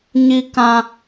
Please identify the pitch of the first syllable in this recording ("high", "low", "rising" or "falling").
low